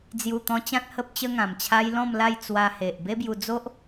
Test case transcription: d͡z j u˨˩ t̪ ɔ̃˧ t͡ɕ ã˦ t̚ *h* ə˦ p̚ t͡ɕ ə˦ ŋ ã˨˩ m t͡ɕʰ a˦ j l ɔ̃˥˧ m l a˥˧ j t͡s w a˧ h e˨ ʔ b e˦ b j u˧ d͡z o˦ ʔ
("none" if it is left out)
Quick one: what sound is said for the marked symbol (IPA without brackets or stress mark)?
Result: h